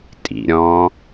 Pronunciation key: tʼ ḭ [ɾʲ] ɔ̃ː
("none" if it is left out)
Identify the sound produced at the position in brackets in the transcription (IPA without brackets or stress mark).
ɾʲ